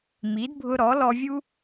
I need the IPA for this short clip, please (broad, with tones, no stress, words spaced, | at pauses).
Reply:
mi˨˦dbʱʊ˧ɾɔ˨˦lɔ˧ vʲu˦